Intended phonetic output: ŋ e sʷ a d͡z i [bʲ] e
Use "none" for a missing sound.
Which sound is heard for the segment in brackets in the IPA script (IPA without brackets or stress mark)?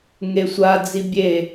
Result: bʲ